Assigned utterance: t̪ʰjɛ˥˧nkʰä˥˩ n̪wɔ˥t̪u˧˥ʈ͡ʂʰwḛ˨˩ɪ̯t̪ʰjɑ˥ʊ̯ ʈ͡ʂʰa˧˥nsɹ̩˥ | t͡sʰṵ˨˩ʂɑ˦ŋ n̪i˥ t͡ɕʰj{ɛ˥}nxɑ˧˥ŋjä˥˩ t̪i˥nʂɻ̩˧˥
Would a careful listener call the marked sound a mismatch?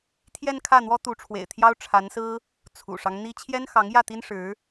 no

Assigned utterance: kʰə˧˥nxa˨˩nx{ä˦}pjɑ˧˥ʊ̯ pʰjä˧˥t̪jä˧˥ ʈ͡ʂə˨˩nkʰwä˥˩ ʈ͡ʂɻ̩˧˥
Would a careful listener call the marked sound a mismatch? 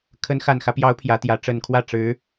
no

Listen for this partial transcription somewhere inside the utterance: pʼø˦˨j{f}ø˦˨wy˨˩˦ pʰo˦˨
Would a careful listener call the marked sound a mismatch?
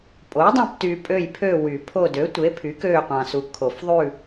yes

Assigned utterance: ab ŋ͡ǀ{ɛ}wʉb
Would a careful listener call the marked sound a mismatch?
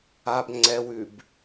no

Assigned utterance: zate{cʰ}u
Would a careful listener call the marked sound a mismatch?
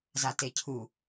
no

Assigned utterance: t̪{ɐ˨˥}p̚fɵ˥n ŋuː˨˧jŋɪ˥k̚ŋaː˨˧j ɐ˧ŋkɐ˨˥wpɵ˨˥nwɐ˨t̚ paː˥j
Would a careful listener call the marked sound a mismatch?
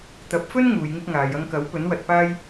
no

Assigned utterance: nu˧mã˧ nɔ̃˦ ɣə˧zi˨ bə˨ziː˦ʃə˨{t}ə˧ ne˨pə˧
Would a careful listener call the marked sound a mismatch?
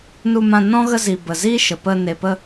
yes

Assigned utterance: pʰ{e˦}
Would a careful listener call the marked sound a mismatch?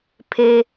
no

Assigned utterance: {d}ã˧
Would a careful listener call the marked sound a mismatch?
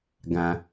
yes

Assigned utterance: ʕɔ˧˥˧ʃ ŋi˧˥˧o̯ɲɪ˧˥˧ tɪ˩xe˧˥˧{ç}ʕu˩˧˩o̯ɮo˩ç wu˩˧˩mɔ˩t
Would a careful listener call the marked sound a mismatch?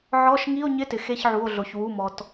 no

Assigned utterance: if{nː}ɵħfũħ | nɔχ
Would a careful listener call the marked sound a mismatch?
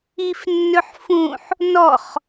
no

